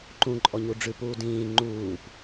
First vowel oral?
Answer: no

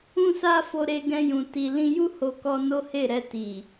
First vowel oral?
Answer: no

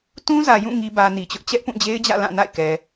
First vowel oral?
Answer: no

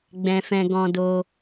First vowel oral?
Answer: no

